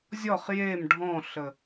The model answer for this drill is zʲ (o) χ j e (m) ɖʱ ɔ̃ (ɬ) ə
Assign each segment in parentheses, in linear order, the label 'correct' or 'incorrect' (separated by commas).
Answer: incorrect, correct, correct